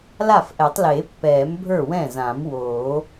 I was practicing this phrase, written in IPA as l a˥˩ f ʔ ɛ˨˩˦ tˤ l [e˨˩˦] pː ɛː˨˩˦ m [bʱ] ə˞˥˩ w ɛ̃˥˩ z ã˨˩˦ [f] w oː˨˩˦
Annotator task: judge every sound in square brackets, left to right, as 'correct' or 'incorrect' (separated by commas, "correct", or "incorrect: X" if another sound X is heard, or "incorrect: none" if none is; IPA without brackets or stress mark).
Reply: correct, correct, incorrect: m